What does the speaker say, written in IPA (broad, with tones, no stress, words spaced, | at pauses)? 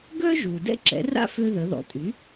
ɡœ˥ʒu˩ dɛ̰˥ǁɛ̰˩˥ra̰˥fø˧ ðə˩˧ðɔ̰˩˧tʼy˩˥